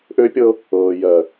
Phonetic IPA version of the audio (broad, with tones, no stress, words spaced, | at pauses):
ʔø˦pʲɤ˦ | ɤː˨jɜ˨